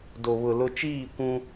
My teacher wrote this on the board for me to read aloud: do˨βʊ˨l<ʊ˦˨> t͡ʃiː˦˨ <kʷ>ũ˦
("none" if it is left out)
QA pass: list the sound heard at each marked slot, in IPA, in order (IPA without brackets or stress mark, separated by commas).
ʊ˦, kʷ